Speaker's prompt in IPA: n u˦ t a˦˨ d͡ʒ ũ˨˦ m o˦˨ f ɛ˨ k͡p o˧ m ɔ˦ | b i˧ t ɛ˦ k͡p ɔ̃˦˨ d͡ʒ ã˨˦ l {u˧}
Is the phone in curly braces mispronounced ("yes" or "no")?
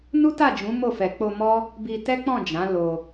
yes